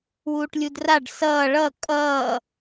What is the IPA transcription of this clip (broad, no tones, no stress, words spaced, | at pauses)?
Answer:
wuːʈlʲudraɖ sʌː ɭʌ kʼʌː